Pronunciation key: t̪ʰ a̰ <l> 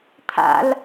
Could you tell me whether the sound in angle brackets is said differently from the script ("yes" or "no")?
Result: no